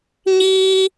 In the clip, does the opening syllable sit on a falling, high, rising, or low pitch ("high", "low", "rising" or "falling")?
high